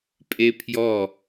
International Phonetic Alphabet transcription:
pʼepʰjɔ

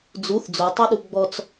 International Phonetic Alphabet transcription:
d͡zuθ d͡zotˤøɗu ɡ͡bɔt͡s

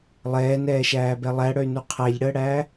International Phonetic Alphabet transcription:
lˠɛːnɛːʃæːbɛ lˠæɽœy̯nu qʰæʎɽəːɽæː

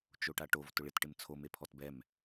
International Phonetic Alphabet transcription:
t͡ʃoʈaʈov tʊɭɪt ʈɪmt͡sʰo mepʰɔtbɛm

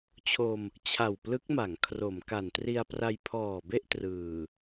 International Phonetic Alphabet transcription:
t͡ɕʰo˧m | t͡ɕʰa˨˩wplɯ˦˥k̚ma˩˦ŋ kʰro˩˦mka˨˩n tri˧a̯pra˧jpʰɔː˨˩be˥˩ʔ trɯː˨˩

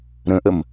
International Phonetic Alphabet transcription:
ɾə̃ʔəm

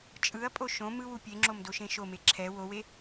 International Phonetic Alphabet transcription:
t͡ʃʼɯɐ̯pʼo ʃõ mɯwu pʲeŋ͡ǁomdoʃẽ ʃome ǁʰɛ wowe

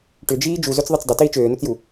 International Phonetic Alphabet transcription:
ʈʏd͡ʒiː d͡ʒuzøt͡sðˤit͡s dˤɪtiː t͡ʃøːnot͡sju

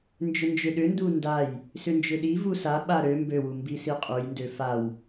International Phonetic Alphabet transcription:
nd͡ʒʏnd͡ʒʏɗʏndu ndaj | sʏnd͡ʒʏɗivu saɓa ɾø mbøwu mbisiqʼujndø faw

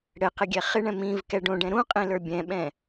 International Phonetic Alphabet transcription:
ɽɘqɪ ɡʲɛχɪɳɛ̃ mĩvkɛ ɖõɖɛ̃ ɾũqʼĩ lə˞bʲɛ̃ɓɛ̃

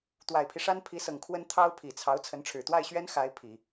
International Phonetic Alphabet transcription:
t̪wa˨˩ɪ̯pʰi˦ʂa˥n pʰi˧˥sɤ˨˩ŋkʰwə˥n t̪ʰɑ˥ʊ̯ pʰi˨˩t͡sʰɑ˧˥ʊ̯ t͡sʰə˧˥nʈ͡ʂʰɻ̩˨˩ t̪wa˥˩ɪ̯ɕɥɛ˥n xa˧˥ɪ̯ pʰi˨˩˦

